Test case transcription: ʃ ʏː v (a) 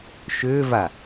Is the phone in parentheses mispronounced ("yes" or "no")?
no